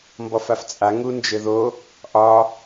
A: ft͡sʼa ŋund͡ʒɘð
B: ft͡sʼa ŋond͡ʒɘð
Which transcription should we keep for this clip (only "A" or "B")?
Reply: A